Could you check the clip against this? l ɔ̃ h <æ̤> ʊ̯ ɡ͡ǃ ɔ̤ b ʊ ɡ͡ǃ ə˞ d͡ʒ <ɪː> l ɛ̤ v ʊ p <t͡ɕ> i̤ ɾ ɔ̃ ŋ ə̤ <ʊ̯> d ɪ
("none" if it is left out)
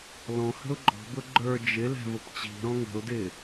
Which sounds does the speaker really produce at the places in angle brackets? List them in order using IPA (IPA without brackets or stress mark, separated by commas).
ə̤, ɪ, t͡ɕ, ʊ̯